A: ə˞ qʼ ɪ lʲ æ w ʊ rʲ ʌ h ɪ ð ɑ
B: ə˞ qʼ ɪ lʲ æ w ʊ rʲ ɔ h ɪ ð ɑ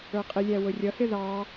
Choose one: A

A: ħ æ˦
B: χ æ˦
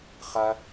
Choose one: B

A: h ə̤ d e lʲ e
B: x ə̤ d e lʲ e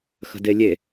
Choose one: B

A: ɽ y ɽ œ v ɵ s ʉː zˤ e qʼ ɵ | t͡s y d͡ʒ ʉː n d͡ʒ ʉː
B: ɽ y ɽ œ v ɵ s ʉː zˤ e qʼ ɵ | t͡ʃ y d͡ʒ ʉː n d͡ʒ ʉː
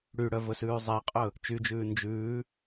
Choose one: B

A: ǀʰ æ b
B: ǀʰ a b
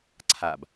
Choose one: B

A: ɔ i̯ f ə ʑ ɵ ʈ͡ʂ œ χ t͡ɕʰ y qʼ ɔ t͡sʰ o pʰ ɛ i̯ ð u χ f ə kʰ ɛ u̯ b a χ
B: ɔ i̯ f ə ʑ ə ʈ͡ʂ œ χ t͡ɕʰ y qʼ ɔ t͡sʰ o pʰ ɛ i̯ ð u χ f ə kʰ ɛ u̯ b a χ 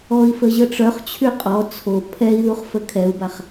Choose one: B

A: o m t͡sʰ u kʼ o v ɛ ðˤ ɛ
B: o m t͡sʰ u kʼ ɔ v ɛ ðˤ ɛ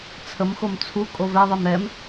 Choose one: A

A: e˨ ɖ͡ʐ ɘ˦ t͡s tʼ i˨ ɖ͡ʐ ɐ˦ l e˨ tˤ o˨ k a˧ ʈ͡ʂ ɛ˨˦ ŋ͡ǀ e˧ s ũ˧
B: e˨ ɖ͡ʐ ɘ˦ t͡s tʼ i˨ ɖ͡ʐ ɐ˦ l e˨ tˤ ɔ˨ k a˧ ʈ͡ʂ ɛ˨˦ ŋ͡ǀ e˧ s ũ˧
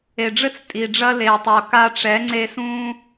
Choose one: A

